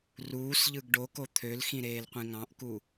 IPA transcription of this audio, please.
r uː s ʎ ɯ ɡ ɖ o k o t̪ʰ ø l x ĩ ɾ eː l qʷ ĩ ŋ ɑ̃ ʔ k u

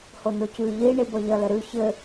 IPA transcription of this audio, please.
h o n o c ʉ ʎ i ɳ i b ʌ ʎ ʌ l ɘ ɾ ʉ ç ɘ

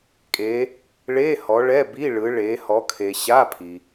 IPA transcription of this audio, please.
kʼ e˨˦ | ɭ e˧˥˧ h ɔ˨˦ ɭ ɛ˧˥˧ b i˧˥˧ ɭ ɯ˨˦ ɭ e˨˦ h ɔ˨˦ kʰ e˨ ɕ a˧˥˧ pʰ i˨

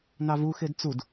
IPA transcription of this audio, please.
n ɑ v u x e d t͡s u d

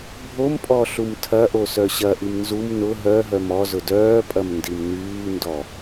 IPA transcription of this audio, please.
bʱ o m pʼ ɔ ɬ u m tʰ ɐ ʔ o s œ ɕ ɐ ʔ i m n z u m n ʊ ɦ œ ɦ œ m ɔ z ʊ d œː pʼ ɐ m n d i m n yː n d ɔ

